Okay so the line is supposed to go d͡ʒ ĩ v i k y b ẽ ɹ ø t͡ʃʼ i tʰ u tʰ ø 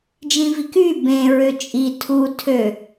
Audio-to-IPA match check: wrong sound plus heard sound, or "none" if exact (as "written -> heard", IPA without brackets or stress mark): none